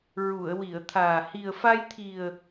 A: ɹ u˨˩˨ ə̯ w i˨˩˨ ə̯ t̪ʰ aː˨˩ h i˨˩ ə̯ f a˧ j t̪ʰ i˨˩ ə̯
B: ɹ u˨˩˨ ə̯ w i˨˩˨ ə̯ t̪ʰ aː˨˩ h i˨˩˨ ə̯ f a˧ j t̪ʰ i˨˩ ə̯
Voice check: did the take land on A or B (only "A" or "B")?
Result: A